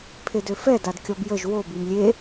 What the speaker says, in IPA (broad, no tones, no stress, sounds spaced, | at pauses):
pʰ e d ø f ɛ d a d kʲ ɔ b j ə ʒ w o b i m lʲ e